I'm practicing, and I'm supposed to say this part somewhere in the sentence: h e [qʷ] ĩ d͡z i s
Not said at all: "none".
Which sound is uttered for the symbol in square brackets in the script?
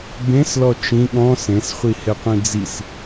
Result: qʷ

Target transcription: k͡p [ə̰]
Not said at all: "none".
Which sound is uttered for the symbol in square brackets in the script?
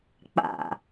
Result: a̰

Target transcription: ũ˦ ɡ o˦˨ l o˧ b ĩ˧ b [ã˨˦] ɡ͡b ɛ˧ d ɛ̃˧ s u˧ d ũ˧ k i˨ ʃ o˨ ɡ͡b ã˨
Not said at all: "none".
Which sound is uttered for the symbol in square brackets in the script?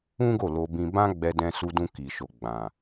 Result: ã˦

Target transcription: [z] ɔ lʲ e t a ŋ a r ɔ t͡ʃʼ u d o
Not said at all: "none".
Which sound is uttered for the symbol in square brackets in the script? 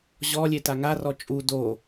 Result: ʑ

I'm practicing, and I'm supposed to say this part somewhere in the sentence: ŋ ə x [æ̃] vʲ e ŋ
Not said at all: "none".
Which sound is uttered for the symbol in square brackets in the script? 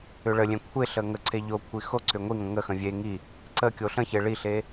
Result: ə̃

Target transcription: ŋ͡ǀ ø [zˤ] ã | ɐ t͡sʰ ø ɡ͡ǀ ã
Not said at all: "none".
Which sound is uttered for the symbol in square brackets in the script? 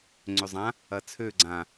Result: zˤ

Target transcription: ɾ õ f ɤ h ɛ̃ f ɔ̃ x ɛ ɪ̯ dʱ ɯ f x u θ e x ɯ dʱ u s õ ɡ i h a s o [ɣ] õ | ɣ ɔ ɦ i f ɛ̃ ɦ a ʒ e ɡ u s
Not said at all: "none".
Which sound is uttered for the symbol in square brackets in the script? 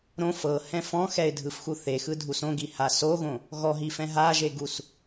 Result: ɣ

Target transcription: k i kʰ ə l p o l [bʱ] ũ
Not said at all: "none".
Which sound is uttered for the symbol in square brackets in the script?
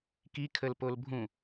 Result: bʱ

